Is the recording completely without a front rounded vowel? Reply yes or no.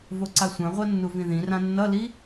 yes